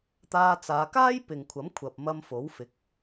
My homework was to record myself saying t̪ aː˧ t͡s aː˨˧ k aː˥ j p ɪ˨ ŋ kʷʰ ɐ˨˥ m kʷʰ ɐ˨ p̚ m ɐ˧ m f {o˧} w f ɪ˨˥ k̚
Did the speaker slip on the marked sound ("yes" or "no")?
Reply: yes